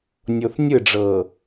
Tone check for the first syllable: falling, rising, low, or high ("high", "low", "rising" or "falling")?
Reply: low